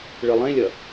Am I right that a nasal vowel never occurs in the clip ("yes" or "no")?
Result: no